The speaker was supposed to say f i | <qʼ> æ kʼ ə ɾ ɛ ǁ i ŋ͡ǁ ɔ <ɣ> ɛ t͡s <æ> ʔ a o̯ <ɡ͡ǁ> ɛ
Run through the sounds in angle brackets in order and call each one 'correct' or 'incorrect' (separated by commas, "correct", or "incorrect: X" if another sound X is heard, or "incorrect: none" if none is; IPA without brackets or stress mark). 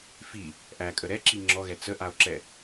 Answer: incorrect: ʔ, correct, incorrect: ə, incorrect: ǁ